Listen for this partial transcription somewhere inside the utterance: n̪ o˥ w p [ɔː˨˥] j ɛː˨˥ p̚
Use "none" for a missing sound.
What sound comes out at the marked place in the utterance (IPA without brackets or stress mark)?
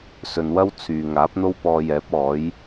ɔː˧